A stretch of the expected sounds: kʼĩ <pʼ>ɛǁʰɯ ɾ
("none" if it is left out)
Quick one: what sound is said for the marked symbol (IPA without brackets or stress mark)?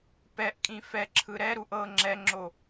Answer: f